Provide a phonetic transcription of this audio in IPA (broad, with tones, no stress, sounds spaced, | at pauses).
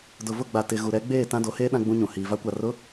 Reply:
d ʊ˨ v ʊ˦˨ ɡ͡b a˨ t ɪ˨ ɣ u˨ ɾ ɛ˨˦ ɡ͡b eː˦˨ t ã˦ d o˨˦ h eː˦ ɗ ã˦ ɡ͡b ũ˦ ɲ ũ˨ h iː˨ v a˦ kʷ a˨ r ʊ˨˦